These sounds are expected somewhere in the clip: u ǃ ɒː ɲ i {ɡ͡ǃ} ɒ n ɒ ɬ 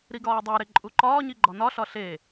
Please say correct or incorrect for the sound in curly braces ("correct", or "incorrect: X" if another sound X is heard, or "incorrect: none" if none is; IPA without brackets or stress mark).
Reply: correct